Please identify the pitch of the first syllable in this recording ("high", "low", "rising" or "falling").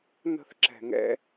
falling